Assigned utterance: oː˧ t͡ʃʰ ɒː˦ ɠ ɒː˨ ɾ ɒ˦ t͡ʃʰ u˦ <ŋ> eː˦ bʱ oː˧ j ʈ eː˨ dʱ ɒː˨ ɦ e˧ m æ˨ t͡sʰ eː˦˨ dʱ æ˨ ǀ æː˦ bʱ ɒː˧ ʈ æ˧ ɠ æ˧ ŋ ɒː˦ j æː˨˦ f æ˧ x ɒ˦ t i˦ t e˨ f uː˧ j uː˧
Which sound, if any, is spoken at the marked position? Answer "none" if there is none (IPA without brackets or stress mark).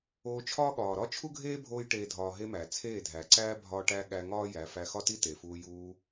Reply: ɡʱ